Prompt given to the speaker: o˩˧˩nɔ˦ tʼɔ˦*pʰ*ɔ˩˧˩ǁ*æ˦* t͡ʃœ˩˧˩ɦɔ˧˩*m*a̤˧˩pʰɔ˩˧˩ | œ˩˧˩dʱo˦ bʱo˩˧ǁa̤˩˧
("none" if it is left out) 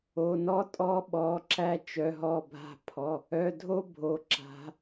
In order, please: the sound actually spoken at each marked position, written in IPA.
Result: ɓ, æ˦, bʱ

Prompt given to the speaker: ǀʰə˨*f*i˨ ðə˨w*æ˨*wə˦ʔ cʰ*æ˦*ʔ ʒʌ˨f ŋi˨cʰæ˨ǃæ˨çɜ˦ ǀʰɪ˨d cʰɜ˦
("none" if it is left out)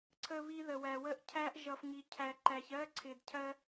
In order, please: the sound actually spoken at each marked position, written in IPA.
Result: β, æ˨, æ˦

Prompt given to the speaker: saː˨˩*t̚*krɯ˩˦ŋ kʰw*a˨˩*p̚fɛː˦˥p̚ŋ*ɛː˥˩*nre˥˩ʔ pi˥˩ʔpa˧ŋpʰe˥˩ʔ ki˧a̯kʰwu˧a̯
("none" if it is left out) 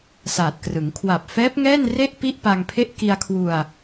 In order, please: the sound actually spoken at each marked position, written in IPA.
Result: t̚, a˨˩, ɛː˥˩

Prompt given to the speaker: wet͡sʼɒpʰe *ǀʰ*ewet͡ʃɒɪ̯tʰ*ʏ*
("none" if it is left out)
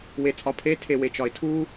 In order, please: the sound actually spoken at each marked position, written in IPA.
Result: tʰ, u

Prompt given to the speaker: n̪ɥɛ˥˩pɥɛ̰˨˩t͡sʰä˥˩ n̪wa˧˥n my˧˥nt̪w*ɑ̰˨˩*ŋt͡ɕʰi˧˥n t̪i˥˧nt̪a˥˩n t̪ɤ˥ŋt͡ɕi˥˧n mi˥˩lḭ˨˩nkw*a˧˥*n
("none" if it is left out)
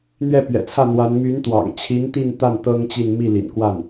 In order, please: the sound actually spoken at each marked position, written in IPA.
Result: ɑ̰˨˩, a˥˩

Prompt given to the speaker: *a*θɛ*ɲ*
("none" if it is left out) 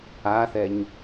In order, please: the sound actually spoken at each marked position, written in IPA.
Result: a, ɲ

